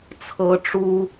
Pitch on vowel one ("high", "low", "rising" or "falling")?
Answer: high